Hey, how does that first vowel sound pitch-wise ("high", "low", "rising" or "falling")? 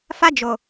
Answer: high